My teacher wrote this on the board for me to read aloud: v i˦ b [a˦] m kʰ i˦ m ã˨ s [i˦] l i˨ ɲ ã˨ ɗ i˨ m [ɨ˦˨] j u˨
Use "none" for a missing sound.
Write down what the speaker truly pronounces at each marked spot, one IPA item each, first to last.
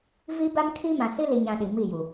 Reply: a˦, i˦, i˦˨

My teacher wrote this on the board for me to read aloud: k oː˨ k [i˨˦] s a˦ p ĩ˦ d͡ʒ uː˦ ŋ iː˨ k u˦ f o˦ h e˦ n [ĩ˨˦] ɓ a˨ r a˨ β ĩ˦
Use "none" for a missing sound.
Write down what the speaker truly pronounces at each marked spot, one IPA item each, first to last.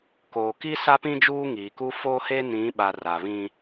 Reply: i˦, ĩ˨˦

